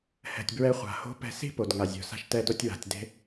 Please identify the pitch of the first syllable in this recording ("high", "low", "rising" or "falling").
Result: low